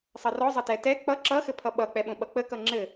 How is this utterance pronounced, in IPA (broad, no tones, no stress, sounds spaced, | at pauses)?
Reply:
sˤ ʌ r ɔ zˤ ʌ t ɛ t ɛ k͡p ʌ ǁ ʌ x ɘ pʰ ʌ ɓ ʌ k͡p ɛ ɓ õ ɓ ʌ k͡p ə k ʌ ŋ͡ǁ ɘ